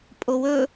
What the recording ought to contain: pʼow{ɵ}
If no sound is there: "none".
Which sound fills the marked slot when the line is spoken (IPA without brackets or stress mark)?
ɵ